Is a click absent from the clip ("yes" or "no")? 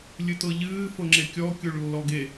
no